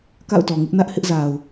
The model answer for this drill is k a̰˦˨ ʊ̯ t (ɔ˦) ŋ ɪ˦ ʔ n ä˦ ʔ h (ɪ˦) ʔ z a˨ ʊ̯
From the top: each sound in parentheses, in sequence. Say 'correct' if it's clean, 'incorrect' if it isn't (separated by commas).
incorrect, correct